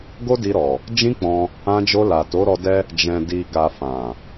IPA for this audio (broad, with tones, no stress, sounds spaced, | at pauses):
ɡ o˦ d i˧ ɾ ɔ˨ | d͡ʒ ĩ˦ k͡p ɔ̃˧ | ã˧ d͡ʒ o˧ l a˨ t o˨˦ ɾ ɔ˧ d ɛ˦ | d͡ʒ ɛ̃˨ d i˨ ɡ a˨ f ã˨